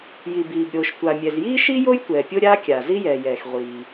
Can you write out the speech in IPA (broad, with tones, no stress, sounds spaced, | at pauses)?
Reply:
j i˩ b iː˩ b ɾʲ oː˩ ʃ tʷ a˩ mʲ ɛ˩ z j iː˥ ʃ i˥ j o˥ j tʷ ɛː˩ pʲ o˥ ɾʲ aː˥ kʲ a˩ z i˥ j ɛː˩ j ɛː˩ x ʁʷ iː˩